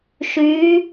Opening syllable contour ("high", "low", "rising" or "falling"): rising